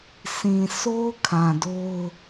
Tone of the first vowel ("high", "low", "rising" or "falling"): low